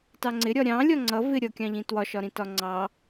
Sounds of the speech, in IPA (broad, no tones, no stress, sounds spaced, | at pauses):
t ɑ ŋ͡ǀ ɪ ɾʲ ɒ ɾʲ ɑ̃ lʲ ɒ ŋ͡ǀ ʌ v ɪ ɾʲ ʌ kʲ ɑ̃ ʎ ĩ t w ɒ ʃ ɒ ɾ ĩ t ɒ ŋ͡ǀ ɑ